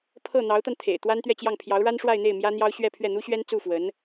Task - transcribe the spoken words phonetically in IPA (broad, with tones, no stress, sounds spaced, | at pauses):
pʰ ɤ˥˩ n̪ ɑ˧˥ ʊ̯ t̪ a˧ n t̪ʰ ḛ˨˩ ɪ̯ t̪ w a˥ n t̪ ɥ ɛ˥˧ t͡ɕ j ɑ˥˩ ŋ pʰ j ɑ˧˥ ʊ̯ ɻ a˥ n ʂ w a˥˧ ɪ̯ n̪ e˥˩ ɪ̯ m j ä˥ n̪ j ɑ˥ ʊ̯ ɕ ɥ ɛ˥˧ pʰ ɥ ɛ˥˩ n̪ u˥ ɕ ɥ ɛ˥ n t͡s u˥˩ f w ə˧˥ n